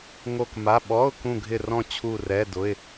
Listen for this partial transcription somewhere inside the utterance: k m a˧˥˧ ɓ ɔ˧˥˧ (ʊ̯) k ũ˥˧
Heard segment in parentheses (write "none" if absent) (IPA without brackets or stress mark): ʊ̯